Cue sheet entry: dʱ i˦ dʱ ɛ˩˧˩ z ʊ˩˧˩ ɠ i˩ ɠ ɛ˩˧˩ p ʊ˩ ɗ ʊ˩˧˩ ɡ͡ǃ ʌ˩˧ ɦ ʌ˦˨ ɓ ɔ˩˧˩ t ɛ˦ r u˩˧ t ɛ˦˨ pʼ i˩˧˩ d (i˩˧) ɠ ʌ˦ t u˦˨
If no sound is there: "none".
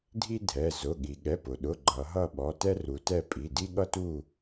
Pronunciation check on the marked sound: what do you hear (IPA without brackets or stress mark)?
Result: i˦